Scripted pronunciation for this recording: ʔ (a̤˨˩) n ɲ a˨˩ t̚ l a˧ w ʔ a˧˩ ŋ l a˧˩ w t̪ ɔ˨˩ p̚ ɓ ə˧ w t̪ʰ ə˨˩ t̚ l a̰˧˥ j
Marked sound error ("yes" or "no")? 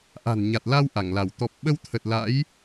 no